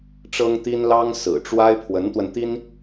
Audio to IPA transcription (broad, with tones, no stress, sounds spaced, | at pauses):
ʈ͡ʂ ɤ˥ ŋ t̪ i˥ n l ɑ˥ ŋ s ɹ̩˨˩ ʈ͡ʂ w a˥ ɪ̯ pʰ w ə˧˥ n t̪ w ə˧ n t̪ i˥ n